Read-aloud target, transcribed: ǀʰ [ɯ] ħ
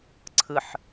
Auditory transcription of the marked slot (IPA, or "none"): ɯ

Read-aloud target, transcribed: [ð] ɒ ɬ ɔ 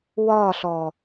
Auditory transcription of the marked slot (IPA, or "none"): w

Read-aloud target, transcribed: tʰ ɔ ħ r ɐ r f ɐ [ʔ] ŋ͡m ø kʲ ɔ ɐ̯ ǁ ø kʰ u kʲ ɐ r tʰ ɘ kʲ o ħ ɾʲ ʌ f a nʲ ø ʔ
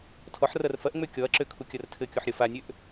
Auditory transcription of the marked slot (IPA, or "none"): ʔ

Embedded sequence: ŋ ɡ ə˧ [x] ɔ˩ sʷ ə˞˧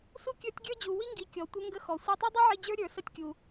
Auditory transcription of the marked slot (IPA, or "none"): x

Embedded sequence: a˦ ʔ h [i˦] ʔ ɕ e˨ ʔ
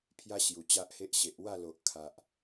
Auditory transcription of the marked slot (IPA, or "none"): e˦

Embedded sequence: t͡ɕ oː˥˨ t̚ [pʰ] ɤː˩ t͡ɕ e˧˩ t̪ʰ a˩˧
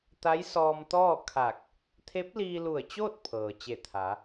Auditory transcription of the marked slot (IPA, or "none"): pʰ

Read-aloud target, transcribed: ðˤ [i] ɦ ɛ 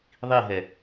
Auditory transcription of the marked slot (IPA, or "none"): i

